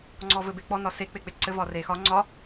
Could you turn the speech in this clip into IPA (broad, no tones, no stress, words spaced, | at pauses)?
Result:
ŋ͡ǀɔvɘbek͡pɔ nɒse k͡pek͡peǀɘ vɒrexɒ ŋ͡ǀɒ